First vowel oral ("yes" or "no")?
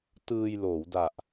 yes